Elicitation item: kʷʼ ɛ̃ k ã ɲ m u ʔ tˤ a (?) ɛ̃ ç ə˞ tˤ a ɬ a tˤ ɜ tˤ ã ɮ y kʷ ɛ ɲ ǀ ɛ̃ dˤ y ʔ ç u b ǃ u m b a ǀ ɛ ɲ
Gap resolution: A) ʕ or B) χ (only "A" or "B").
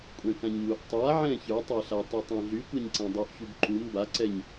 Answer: A